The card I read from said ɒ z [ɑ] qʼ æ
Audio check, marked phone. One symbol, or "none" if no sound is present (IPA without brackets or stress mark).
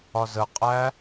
ə